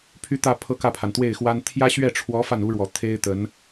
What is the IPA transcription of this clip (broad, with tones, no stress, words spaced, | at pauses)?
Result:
pʰy˥˧t̪ä˥˧ pʰɤ˥˧kä˥˩pʰa˩n t̪we˥˩ɪ̯xwa˥n t̪ʰjä˥ɕɥɛ˥˩ʈ͡ʂʰwɔ˧˥ fa˥˩nu˥ɻwɔ˨˩ t̪ʰe˥ɪ̯t̪ə˧˥n